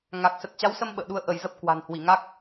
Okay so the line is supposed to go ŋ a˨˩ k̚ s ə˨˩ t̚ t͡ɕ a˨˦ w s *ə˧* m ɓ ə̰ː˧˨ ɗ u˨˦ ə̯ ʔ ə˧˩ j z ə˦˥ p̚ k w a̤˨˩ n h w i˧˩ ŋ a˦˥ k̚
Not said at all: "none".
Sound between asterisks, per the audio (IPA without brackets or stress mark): ə˧